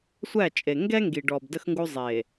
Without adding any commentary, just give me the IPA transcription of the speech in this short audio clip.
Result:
sʷ æ˦˨ t͡ʃʼ e˨ ŋ ɡ ɛ˦ ŋ ɡ i˨ ɖ ɔ˨ b d ə˦ x ŋ ɡ u˦ zˤ e˨

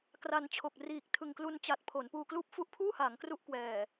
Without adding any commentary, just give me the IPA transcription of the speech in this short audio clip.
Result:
k r a˧ n t͡ɕʰ o˨˩ k̚ r iː˨˩ k̚ tʰ ɯ˨˩ ŋ k l u˧ n t͡ɕ a˨˩ t̚ pʰ o˩˦ n p uː˧ k l uː˥˩ p̚ f u˦˥ ʔ pʰ uː˥˩ h aː˩˦ ŋ k r u˦˥ ʔ k w ɛː˨˩

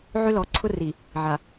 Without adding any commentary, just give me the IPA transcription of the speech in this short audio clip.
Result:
ʕ ø˦ l ɔː˨ ǀʰ ʊ˦ r i˨ | ʕ a˨

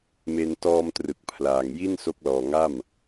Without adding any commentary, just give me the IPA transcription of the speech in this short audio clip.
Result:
m e˧ n t ɔː˧ m t r ɯ˨˩ k̚ pʰ l aː˨˩ ŋ j i˥˩ n s o˦˥ k̚ l ɔː˨˩ ŋ a˥˩ m

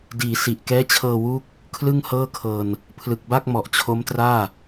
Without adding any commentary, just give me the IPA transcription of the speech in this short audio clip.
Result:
d iː˩˦ s i˨˩ ʔ k ɛː˦˥ t͡ɕʰ ɤː˧ w uː˦˥ k̚ | kʰ l ɯ˥˩ ŋ h ɤː˥˩ kʰ ɤː˧ n | pʰ l ɯ˨˩ k̚ b a˥˩ k̚ m ɔ˨˩ ʔ t͡ɕʰ o˦˥ m t r aː˥˩

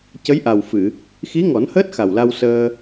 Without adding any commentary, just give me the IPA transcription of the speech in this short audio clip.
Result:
c ə˧˥ j ʔ a˨˩ w f ɨ˨˩˨ | x i˧˥ ŋ ɔ˨˩˦ n h əː˦˥ t̚ x a˨˩ w l a˧ w s əː˧

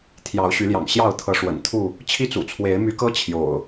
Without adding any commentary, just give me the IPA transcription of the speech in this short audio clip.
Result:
t̪ʰ j ɑ˨˦ ʊ̯ ɕ y˨˦ l j ɑ̰˨˩ ŋ ɕ j ɑ˥˨ ʊ̯ t̪ʰ ɤ˨˦ ʂ w ə̰˨˩ n t̪ʰ u˥˨ | t͡ɕʰ i˦ t͡s ṵ˨˩ t͡sʰ w e˨˦ ɪ̯ m y˨˦ k ɤ˦ t͡ɕʰ j o̰˨˩ ʊ̯

